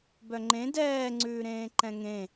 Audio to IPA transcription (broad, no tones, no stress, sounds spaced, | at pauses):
b œ ŋ͡ǃ ẽ d ɛː ŋ͡ǀ ʉː ɾ ẽː ǃ ɛ̃ ŋ ẽ